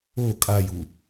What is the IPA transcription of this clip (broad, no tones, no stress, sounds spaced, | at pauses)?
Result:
o kʼ a j u